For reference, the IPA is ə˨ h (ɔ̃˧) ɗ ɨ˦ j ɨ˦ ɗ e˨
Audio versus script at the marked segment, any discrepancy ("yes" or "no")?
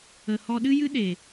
yes